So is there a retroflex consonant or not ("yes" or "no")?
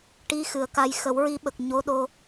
yes